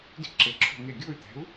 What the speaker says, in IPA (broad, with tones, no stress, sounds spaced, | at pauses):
d i̤˥˩ ǁ e˨˥ ǁʰ o̤˥˩ ŋ e˥˩ ɡʲ o˥˩ y̯ t̪ ɛ̤˨˥ u̯